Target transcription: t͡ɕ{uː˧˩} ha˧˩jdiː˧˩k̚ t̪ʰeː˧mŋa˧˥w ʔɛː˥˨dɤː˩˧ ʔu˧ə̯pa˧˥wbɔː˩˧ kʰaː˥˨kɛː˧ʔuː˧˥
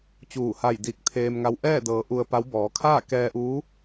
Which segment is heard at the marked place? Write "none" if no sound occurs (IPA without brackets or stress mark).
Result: uː˧˩